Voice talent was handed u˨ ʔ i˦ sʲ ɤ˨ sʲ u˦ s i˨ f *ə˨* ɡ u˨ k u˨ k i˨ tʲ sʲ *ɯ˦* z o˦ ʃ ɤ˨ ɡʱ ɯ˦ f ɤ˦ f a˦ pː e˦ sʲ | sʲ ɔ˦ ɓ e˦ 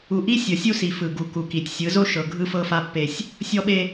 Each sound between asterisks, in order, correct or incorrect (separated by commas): incorrect, incorrect